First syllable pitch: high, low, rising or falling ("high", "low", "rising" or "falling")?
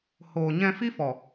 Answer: low